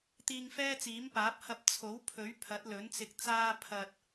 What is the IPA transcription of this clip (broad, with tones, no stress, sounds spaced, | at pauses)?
t̪ iː˧ ŋ f ɛː˥ t͡s iː˨˥ m p aː˨˥ p̚ h ɐ˧ p̚ t͡sʰ o˨˥ w pʰ ɵ˨˥ ɥ pʰ ɐ˨˥ t̚ l ɵ˨˥ n t͡s ɪ˧ k̚ t͡s aː˥ pʰ ɐ˧ t̚